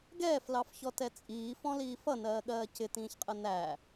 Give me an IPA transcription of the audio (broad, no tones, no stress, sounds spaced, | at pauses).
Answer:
ɡ ɛː f l ɑ f ç ɔ t ɛ t͡sʼ iː f ɔ̃ l iː f ʌ n ɜː ɠ ɜː c ɪ t ĩː ç qʼ ə n æ